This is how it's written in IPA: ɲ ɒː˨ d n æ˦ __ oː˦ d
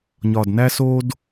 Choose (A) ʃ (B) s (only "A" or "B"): B